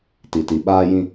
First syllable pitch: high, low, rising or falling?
low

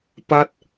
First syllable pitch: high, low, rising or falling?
falling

